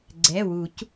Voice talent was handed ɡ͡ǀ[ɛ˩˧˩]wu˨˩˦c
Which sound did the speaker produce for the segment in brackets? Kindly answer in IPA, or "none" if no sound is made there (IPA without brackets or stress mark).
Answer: ɛ˩˧˩